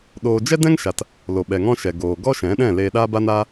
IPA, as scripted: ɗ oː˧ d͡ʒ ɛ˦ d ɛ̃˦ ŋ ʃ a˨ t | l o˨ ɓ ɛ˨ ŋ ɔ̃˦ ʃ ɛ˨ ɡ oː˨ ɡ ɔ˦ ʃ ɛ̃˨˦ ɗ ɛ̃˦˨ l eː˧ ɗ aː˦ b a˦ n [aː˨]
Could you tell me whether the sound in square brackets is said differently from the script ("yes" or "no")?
yes